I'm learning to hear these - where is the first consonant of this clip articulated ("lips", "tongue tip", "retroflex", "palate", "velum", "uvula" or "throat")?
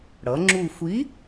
retroflex